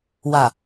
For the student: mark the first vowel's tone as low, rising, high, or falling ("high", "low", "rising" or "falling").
low